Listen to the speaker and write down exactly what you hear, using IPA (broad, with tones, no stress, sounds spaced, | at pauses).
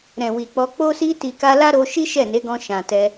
ɾ ɛ̃˨ w i˨ k͡p ɔ˧ k͡p o˧ s i˧ t i˨ k a˧ l a˦ ɾ o˧ ʃ i˦ ʃ ɛ˦˨ n e˨˦ ɡ ɔ̃˧ ʃ ã˨ t ɛ˧